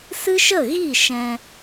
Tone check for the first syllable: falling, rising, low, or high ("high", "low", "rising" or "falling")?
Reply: high